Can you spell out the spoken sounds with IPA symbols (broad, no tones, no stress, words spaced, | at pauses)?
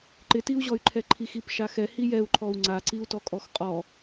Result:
ǃɪtiu̯ʑɔy̯ǃʰɛ ǃʰixipʃaxɛ hijɛu̯ǃʰɔu̯ ŋ͡ǀaǀiu̯tɔ kʼɔxqʼɔ